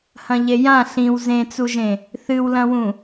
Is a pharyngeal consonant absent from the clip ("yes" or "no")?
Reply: yes